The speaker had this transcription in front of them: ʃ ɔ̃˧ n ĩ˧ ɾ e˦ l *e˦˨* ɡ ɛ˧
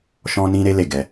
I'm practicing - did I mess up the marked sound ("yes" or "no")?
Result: no